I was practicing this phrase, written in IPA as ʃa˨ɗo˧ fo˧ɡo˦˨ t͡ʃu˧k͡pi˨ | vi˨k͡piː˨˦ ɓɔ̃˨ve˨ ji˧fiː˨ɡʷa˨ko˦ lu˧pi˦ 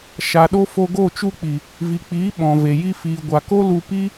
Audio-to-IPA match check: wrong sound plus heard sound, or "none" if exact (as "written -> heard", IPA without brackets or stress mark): none